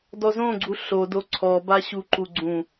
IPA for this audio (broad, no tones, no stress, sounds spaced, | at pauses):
d ɔ z õ ɡ͡ǀ u ɬ o d o ǀʰ ɔ b a ɕ u ǃ u ɡ͡ǀ ũ